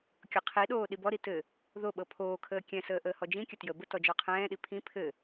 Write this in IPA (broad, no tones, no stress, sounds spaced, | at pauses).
kʲ ɤ qʰ i ɗ oː ɗ i b ɔ ɾ i t ɘ | ð o ɓ ɤ pʰ oː kʰ əː kʲ ɛ̃ s əː ʔ əː h ɔ d͡ʒ ĩ kʲ ə t j ə b ə t ɔ d͡ʒ ɔ qʰ ɛ̃ː ɗ i pʰ ĩ pʰ ɘ